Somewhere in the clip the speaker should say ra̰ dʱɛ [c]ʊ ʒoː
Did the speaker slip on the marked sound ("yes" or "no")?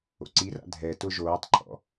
yes